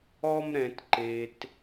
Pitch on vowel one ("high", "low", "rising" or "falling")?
high